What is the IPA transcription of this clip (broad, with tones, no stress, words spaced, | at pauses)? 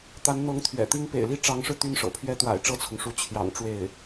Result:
t̪a˧˥nn̪ɤ˧˥ŋt̪ʰɥɛ̰˨˩t̪i˥ŋ pḛ˨˩ɪ̯li˥˩ʈ͡ʂɑ˧˥ŋʂɻ̩˧ t̪y˥˩nʂɤ̰˨˩pʰɥɛ˥ t̪wa̰˨˩ɪ̯ʈ͡ʂɤ˥˩t͡sʰʊ˩ŋʂu˧˥ t͡ɕʰjɑ̰˨˩ŋ ʈ͡ʂwe˥˩ɪ̯